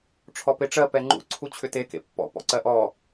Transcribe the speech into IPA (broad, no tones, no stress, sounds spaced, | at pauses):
ʈ͡ʂʰ ɔ p e ʈ͡ʂ ɜ p ɛ ŋ͡ǃ ṵ ǀʰ u t͡ɕʰ ʏ t e k ḛ pː ɔ̰ p ɔ̰ ǀ ɜ ʔ ɔ